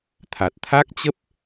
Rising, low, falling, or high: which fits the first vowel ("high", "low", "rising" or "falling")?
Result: low